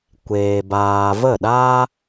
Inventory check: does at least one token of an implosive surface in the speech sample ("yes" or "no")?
yes